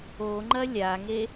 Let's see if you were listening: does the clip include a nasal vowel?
no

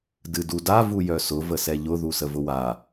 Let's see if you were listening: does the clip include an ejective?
no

